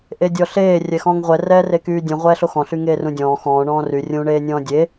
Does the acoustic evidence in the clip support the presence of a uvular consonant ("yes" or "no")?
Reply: yes